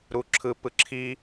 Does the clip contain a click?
yes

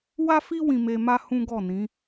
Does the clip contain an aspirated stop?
no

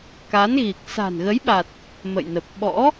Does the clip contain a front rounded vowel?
no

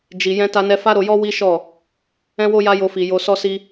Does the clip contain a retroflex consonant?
no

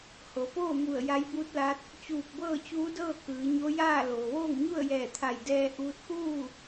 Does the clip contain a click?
no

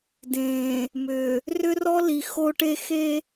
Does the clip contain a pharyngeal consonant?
no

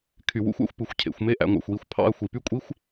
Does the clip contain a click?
no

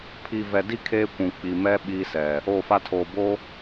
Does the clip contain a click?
no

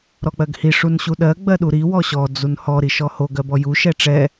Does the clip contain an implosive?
yes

